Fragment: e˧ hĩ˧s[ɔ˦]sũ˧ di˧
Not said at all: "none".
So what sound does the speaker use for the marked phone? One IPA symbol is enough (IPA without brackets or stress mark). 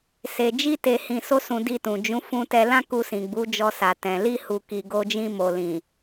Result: o˦